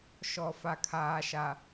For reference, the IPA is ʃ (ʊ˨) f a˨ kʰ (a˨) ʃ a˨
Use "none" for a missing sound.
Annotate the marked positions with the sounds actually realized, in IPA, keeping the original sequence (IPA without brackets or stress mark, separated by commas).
ɔ˨, aː˨